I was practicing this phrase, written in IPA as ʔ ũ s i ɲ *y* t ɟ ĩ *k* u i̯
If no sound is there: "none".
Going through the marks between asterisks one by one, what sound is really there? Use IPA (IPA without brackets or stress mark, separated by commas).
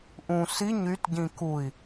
y, k